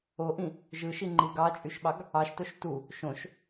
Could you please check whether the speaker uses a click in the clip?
yes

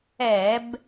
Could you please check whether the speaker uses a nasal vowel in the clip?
no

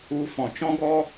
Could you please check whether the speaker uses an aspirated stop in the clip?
no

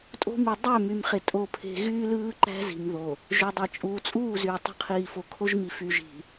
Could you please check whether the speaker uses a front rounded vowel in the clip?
yes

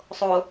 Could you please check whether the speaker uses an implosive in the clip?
no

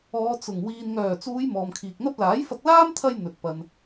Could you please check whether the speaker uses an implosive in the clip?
no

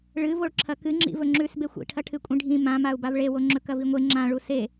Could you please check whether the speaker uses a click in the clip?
yes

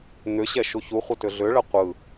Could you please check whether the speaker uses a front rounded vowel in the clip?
yes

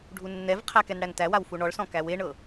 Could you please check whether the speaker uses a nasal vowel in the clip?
yes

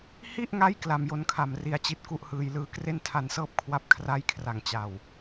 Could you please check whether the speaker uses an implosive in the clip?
no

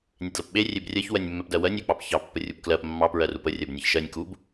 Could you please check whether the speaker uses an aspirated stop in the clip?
no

